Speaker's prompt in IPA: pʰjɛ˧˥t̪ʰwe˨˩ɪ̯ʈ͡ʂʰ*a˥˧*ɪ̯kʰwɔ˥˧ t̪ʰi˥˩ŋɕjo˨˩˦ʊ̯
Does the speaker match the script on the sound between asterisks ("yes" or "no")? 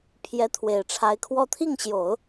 no